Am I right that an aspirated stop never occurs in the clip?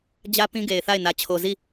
no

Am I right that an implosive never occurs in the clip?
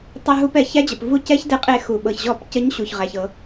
no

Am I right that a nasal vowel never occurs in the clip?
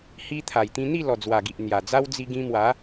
no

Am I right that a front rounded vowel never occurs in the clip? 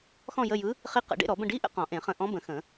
yes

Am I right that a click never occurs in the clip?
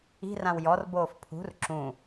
no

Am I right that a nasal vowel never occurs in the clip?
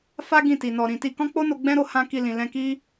no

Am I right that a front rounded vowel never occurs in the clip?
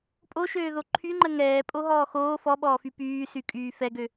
no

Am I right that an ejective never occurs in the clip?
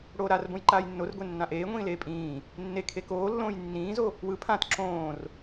no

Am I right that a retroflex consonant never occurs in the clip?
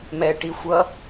no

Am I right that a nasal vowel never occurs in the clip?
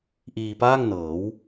yes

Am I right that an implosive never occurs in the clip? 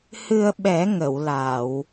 no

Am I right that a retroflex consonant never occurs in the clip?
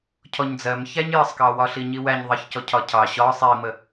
yes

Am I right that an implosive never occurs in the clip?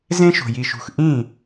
yes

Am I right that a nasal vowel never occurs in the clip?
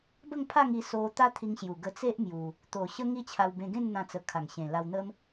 no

